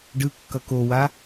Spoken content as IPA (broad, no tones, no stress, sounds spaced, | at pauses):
ɖ ɯ kː ʌ k o w a